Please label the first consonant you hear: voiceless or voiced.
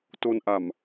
voiceless